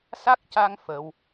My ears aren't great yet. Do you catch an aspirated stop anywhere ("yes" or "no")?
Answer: no